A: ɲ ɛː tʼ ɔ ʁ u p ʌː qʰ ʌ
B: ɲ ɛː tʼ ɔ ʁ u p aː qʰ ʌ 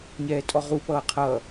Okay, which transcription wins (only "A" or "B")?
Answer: A